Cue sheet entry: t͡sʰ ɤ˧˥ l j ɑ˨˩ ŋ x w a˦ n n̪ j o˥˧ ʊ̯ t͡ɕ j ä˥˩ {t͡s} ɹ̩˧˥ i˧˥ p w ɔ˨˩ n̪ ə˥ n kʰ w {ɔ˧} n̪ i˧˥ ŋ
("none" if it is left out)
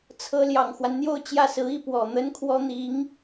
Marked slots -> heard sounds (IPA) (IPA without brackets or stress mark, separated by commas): s, ɔ˥